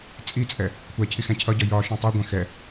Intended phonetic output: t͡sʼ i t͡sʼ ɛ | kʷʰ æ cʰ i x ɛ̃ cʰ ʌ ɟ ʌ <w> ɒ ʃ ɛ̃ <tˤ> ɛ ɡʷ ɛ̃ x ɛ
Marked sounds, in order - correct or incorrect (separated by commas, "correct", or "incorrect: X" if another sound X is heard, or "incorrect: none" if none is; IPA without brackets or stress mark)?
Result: incorrect: j, correct